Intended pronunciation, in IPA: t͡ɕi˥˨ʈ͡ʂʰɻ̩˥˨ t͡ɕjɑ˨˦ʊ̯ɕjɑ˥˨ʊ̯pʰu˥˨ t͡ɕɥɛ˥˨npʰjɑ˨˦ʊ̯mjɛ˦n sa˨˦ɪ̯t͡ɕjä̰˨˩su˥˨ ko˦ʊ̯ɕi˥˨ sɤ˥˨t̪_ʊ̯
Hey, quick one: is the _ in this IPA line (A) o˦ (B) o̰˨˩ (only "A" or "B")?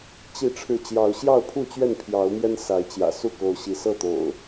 B